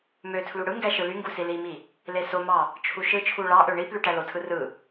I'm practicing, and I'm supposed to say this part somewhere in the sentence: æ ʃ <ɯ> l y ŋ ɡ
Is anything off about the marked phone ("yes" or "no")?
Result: no